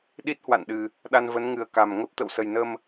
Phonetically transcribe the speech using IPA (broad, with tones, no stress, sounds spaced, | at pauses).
ɗ i˦˥ t̚ h w a̰˧˨ n ɗ ɨ˨˩ | ɗ a˧ n v ə˨˦ n ŋ ɨ˨˩ ə̯ k a˨˩ m ŋ ə˦˥ p̚ t̪ ə̰˧˨ w s ə˨˩ j n ə˧ m